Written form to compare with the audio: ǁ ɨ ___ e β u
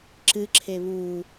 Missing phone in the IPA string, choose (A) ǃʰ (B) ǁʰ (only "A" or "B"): B